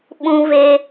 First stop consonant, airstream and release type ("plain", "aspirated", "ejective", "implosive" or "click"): implosive